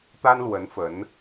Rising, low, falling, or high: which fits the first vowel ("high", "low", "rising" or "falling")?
high